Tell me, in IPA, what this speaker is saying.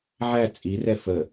ʕ æ t͡sʼ i r ɛ f ə

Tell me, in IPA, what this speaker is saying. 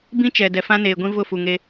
b ĩ˦ t͡ʃ ɛ˨ d ɛ˨ f ã˦ n eː˨ ɡʷ ĩ˦ v ʊ˦˨ f u˨ ŋ e˦

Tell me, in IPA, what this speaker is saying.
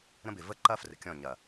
ɾ ə̃˦ b ɪ˨ v ə˦ ǃ ɐ˦ f r ə̰˨ kʲ ɔ̃˦˨ ɲ ɐ˨

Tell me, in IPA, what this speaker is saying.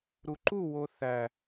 ɾ u ǃ u w o θ æ

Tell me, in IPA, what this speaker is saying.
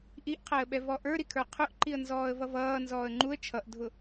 ʔ i ʔ qʰ æ ə̯ ɓ ɛ v ɔ ʔ ə˞ ɾ i kʰ ə˞ qʰ ʊ ʔ ǃ i ə̯ n z ɔː ə̯ v ʌ v ʌː n z ɔː ə̯ ŋ͡ǃ u ə̯ t͡ʃʰ ʌ ʔ dʱ ʊ

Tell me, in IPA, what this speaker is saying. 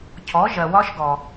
cʰ ɔ˩˥ ʒ ɜ˩ w ɒ˦˥ ʃ ɡ ɔ˩

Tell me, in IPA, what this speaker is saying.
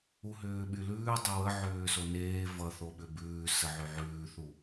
u ɦ ʏː ɓ y l ʉː dˤ ʏ w ə ʕ ʏː s o n eː v ʌ θ o ɓ ʏ b ʉː s ə ʕ y ʕ ʉː θ u

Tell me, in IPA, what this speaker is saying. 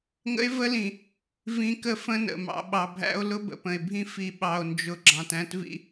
ŋ ə̰˦ e̯ v ə˦ l ĩ˨ | v ĩ˨ k ə˦ f ə̃˦ n ə̰˨ m ɑ̰˨ ɓ ɑ˨ bʱ æ̰˦ o̯ l ʊ˦ b ə̰˨ p ə̃˨ e̯ bʱ ĩ˦ f i˨ ɓ ɑ˨ o̯ n d͡ʒ ʊ˨ ɡ͡ǁ ɑ̃˨ t æ̃˦ t v ḭ˦

